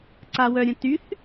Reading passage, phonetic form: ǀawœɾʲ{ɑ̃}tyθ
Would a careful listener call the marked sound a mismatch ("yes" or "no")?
yes